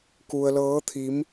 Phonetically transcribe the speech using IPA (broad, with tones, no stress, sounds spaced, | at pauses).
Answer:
k u˧ ə̯ l ɤː˧˥ t̪ʰ i˧˥ m